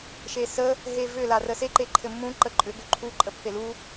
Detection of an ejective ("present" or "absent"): present